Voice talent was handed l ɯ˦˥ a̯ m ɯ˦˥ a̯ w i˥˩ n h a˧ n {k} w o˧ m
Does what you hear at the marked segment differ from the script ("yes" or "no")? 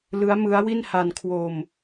yes